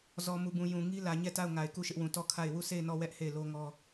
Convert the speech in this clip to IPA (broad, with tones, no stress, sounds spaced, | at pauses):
z ɔ˨ m u˨ b ũ˨ j ũ˨ ŋ i˦ l ä˨ ɲ ɛ˦˨ t a˦˨ ʊ̯ ŋ a˨ ɪ̯ k u˦˨ ʃ ɪ˦ ʔ w ũ˨ t ɔ˦˨ kʰ a˦˨ ɪ̯ w u˦˨ s e˦˨ ɪ̯ n ɔ˦˨ w ɛ˦ ʔ h e˦˨ ɪ̯ l o˦ ŋ ɔ˦